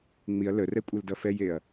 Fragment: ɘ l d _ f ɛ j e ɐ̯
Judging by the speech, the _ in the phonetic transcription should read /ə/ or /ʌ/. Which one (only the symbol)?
ʌ